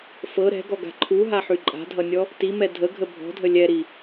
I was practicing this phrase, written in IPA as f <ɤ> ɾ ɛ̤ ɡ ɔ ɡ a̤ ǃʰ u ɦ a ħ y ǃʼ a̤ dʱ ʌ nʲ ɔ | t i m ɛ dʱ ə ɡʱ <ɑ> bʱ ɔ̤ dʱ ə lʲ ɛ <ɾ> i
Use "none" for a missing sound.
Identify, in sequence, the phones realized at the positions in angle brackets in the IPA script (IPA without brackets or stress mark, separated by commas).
ɤ, ə, ɾ